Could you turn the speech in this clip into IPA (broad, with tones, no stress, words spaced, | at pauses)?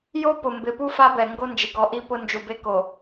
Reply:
jo˦pʊ˨mbɪ˨pu˦ fa˦bɛ˨ ŋɡo˦nd͡ʒɪ˨ɡɔ˨˦ʔi˦ pʊ˦ nd͡ʒu˨be˦ko˨